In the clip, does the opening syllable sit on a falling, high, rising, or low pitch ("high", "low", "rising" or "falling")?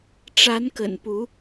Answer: rising